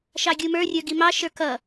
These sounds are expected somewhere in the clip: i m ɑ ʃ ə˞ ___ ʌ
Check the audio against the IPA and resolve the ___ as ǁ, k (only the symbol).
k